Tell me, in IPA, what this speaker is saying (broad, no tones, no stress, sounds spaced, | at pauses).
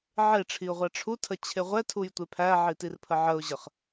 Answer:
ʕ e ʈ͡ʂʰ i ʊ̯ ʁʷ æ ʈ͡ʂʰ u tʰ ə t͡ɕʰ e ʁʷ ɛ tʰ u j tʷ e pʰ æ ʕ i t i r pʰ ə ʕ ə ʊ̯ ʑ ə χ